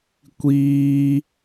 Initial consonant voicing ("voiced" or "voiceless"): voiceless